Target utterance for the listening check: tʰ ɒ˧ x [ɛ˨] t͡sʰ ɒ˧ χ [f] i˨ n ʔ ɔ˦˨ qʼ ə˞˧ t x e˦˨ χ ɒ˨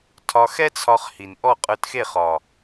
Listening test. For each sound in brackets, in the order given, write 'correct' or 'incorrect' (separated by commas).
incorrect, incorrect